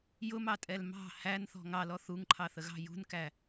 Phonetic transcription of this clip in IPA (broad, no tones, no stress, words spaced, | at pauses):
jʊmɑtʼɛl mɑ̤ hænθɔ̤ ŋɑlɔ θuŋǃʰɑθəɣɑ̤ jṳnkæ